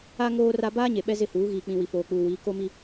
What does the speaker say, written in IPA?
a˦ ŋ oː˦ r a˦ b aː˦ ɲ e˨ ɓ ɛ˦ z ɪ˦˨ h uː˨˦ ɣ iː˨ k͡p ĩ˨ w i˨ f oː˨ k͡p uː˨ w iː˨˦ k o˦ m i˦

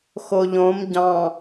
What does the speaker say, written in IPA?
x o ʎ õ m ɟ ɑ̃

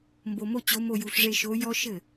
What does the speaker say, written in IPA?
m b o˧ m o˥ t͡ɕ o˧˥ m o˥˧ j u˧ ɬ ʐ e˥˧ ʃ o˧˥ j ɔ˥ ʃ ɘ˥˩

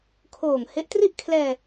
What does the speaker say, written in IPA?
kʰ oː˨˩ ŋ h e˦˥ ʔ t r i˥˩ ʔ kʰ l ɛː˧

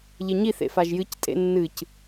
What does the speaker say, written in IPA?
ʎ e ɲ i θ ḛ f a ʒ j ɨ c tʼ ḛ nː ɨ c

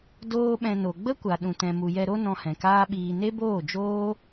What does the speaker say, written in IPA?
d oː˦ ɓ ɛ̃˧ n o˨ ɡ͡b ə˦ kʷ a˨ ɗ ũ˨ t ɛ̃˨ m u˨ j ɛ˧ ɾ o˦ n ɔ̃˧ h ɛ̃˨ k aː˦ ɓ iː˧ n e˦ b oː˦˨ d͡ʒ oː˦

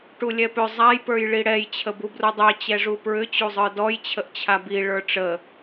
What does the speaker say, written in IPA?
ʈ u lʲ ɛ p ʏ zˤ a j p ə˞ j ɭ i ɽ ɛ j t͡ɕʰ ə b u b r u dˤ ɛ t͡ɕ ɛ ʐ u p ɹ ʏ t͡ɕ u zˤ ə˞ d ɔ j t͡ɕʰ ə ʔ t͡ɕʰ a b i ɭ ə˞ ʈ͡ʂ ə

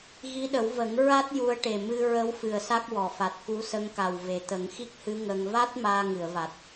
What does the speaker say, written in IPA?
ɣ i˧˥ ɗ ə˨˩˦ w v ə˨˩˦ ŋ ɹ a˦˥ t̚ j u˧˥ ə̯ ʈ e˨˩ m ɨ˧ ɹ ə˧˥ w f ɨ˨˩ ə̯ s a˦˥ k̚ w ɔ˨˩˨ f a˨˩ t̚ k u˧˥ s ə˧˥ ŋ k a˨˩ w v e˨˩ t̪ ə˨˩˦ ŋ x i˦˥ k̚ h ɨ˧˥ ŋ ə˧ ŋ v a˦˥ t̚ m aː˧ ŋ ɨ˨˩˨ ə̯ v a˨˩ t̚

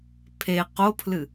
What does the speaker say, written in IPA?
pʰ e q o pʰ l ɨ

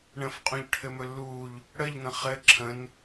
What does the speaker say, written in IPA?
ɳ ə̃ f qʼ ũ ʎ ʈʰ ɘ m ɵ lː uː ʎ | ɽ ə ʎ n̪ ə̃ χ ɘ ǁʰ ə̃ n

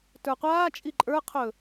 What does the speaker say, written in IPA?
t ə˞ qʷ aː t͡ʃʼ i ǃʼ ə˞ qʰ ɵ

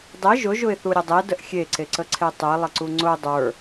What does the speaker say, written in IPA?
dˤ e ʒ ʊ ʒ ʊ ɪ̯ θ u ɾʲ ə dˤ e d ə ʔ xʲ e ǀ e ǀ ə ǀʰ e tˤ e lˠ ə ǀ u ŋ͡ǀ ʊ dˤ ə˞

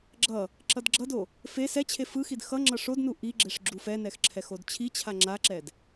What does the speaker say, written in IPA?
ɡ͡ǁ ʌ | ǁ ʌ d ɡ͡ǁ ʌ d o | f e s ɛ t͡ɕʰ e f ɯ x i d x ʌ ŋ͡ǁ ʌ ʂ o d n u ʔ i ɡ͡ǁ e ʂ ɡ͡ǁ u f ɛ n ɛ x ǁʰ ɛ x o d t͡ɕʰ i t͡ɕʰ a ŋ͡ǁ a ǁ ɛ d

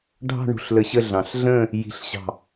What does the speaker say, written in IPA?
ɖʱ ɑ̤˥˧ ɳ ṳ˧˩ ɬ l ə˧˩ ɕ ə˥˧ ɮ ɑ̃˧˩ ɬ ɮ ə̃ː˥˧ | j i̤˥˧ ɬ ɕ ɑ̤˥˧

